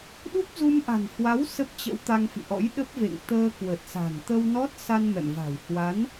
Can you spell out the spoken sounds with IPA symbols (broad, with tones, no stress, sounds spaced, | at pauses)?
ɗ u˦˥ p̚ z u˧ m ʔ a̤˨˩ n h w a˨˦ w s ə˦˥ p̚ t͡ɕ ə̰˧˥ w t̪ a˧ ŋ f ḭ˧˨ ʔ ɔ̰˧˥ j ɗ ə˦˥ p̚ v ḛ˧˨ ŋ t̪ əː˧ k w ə˨˩ t̚ s a̤˨˩ n t̪ ə˧ w n ɔ˦˥ t̚ s a˧ n m ɛ̰˧˨ m v a̤˨˩ w h w a˨˦ n